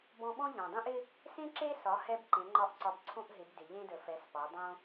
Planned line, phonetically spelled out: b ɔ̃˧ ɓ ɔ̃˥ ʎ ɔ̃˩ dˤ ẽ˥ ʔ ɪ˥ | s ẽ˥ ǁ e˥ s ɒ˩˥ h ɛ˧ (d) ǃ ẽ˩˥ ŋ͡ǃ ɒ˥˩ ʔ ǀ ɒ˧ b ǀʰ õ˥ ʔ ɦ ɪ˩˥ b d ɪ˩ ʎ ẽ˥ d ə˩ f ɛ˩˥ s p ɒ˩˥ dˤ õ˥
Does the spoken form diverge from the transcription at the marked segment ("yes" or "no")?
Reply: yes